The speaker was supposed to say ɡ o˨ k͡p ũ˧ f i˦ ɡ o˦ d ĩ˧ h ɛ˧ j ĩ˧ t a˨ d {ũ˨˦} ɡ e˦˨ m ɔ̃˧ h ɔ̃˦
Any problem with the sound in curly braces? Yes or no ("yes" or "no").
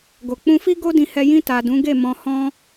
no